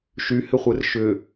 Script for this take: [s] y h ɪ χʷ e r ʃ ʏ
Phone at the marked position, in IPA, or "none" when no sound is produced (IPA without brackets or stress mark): ʃ